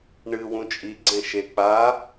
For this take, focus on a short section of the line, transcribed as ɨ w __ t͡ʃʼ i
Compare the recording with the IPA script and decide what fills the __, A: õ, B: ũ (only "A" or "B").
B